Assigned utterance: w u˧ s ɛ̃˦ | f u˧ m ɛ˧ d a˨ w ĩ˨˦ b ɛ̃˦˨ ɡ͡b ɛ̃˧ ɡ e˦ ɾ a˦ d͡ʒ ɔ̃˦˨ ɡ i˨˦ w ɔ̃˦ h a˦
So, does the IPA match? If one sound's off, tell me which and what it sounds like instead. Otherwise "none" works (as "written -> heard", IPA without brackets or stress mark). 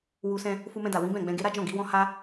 ɛ˧ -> ɛ̃˧